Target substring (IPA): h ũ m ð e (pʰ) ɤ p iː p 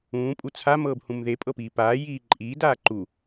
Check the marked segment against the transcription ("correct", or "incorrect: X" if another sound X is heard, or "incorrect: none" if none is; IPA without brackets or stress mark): incorrect: pʼ